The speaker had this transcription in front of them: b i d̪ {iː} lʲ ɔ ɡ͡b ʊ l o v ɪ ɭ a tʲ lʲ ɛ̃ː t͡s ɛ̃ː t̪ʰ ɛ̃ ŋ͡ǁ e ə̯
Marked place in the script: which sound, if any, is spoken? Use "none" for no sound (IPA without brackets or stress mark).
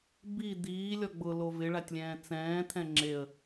iː